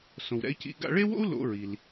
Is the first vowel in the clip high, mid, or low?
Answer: mid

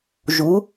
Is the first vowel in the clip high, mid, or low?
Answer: high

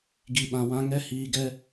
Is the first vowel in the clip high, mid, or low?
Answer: high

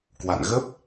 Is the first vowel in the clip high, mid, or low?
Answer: low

